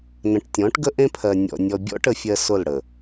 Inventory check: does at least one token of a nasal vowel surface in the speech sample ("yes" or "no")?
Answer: yes